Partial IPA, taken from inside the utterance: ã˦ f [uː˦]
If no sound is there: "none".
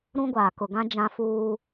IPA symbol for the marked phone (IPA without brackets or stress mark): uː˦